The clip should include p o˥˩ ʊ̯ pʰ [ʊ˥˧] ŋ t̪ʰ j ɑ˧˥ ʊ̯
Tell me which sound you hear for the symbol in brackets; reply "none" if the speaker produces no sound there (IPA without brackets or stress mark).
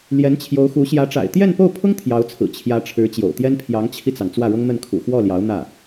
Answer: ʊ˥